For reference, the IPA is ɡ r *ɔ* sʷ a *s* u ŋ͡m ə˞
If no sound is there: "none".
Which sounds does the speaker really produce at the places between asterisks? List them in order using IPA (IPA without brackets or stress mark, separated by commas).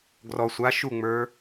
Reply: ɔ, ʃ